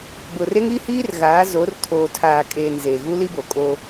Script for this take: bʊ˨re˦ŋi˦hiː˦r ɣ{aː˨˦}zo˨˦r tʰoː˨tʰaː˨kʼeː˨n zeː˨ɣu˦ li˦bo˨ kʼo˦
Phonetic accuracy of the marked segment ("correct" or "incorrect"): correct